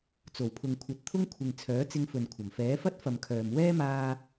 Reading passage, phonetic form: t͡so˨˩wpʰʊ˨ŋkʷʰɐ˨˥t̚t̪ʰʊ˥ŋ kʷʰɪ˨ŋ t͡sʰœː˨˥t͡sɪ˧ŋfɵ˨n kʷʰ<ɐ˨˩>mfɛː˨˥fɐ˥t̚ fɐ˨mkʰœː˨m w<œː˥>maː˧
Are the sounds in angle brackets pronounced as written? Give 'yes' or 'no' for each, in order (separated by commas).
yes, no